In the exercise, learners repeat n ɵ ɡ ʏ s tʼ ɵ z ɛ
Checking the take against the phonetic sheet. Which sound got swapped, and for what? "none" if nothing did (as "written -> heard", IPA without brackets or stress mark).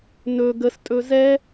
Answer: ʏ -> ə